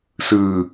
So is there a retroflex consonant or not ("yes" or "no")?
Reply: no